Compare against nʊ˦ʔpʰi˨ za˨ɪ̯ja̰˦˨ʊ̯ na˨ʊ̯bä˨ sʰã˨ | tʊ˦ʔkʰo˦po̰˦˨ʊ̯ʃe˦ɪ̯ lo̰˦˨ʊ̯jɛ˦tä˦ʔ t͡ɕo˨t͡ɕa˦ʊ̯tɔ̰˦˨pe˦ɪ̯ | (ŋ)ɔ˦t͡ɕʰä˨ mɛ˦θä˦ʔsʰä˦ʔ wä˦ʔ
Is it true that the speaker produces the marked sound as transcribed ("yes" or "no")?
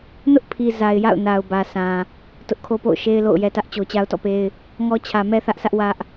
yes